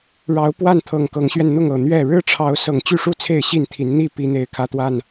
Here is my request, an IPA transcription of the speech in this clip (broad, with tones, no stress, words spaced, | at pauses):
ɻɑ˨˦ʊ̯ pwa˥˨n t̪ʰɤ˨˩ŋkɤ˨˦ŋɕɥɛ˧n n̪ʊ˥˨ŋ ɤ˨˩ n̪ɥɛ˥˨ ɻɻ̩˦ʈ͡ʂʰɑ˨˦ʊ̯ sɤ˨˩ŋt͡ɕy˥˨ʂu˥˨ t͡sʰe˥˨ɪ̯ɕi˥˨nt̪ʰi˨˦n n̪i˥˨pi˨˦n̪e˨˩ɪ̯ kʰä˦t̪wa˥˨n